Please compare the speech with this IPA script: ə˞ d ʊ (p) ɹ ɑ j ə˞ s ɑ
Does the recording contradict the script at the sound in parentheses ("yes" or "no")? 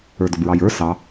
yes